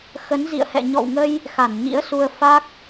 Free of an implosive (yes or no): yes